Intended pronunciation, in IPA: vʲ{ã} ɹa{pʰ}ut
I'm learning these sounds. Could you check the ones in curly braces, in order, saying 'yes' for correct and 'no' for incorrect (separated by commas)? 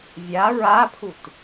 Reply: no, yes